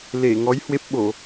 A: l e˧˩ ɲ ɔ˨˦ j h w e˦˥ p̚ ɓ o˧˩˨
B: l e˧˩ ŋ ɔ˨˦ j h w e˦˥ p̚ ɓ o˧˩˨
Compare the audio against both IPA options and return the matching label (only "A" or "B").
B